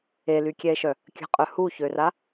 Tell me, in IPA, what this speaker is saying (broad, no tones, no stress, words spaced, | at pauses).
elykʲɛe̯ʃœ | kʲə̤qʼœ huçøra